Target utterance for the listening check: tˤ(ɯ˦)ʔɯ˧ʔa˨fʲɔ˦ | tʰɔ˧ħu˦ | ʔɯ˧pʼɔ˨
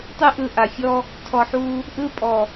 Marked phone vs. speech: correct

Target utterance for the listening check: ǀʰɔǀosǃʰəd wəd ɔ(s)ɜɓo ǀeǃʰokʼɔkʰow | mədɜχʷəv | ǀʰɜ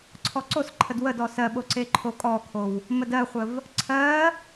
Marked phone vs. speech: correct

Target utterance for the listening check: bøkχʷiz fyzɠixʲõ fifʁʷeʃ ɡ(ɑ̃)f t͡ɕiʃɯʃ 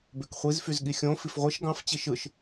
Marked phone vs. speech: correct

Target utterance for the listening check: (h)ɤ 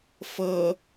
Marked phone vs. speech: incorrect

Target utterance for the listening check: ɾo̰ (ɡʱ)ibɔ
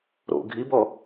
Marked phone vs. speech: correct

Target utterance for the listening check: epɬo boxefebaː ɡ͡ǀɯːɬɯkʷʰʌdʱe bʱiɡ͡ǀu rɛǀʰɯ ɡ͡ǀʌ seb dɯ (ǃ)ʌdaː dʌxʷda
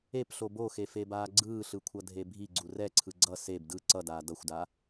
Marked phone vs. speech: incorrect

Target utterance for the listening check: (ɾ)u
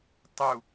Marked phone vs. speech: incorrect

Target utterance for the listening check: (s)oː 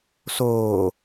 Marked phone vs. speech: correct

